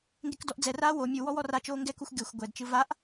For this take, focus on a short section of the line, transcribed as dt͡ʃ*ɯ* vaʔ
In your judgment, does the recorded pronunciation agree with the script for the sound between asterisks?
yes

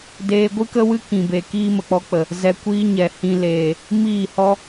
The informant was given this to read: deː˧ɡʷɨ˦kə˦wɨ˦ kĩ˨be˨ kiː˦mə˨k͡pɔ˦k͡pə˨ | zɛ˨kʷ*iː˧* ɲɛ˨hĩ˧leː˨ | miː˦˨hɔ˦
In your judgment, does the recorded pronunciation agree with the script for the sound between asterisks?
yes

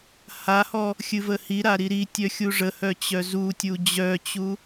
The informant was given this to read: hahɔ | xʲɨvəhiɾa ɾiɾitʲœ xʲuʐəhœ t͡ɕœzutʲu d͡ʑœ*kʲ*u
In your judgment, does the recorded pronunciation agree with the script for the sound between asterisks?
no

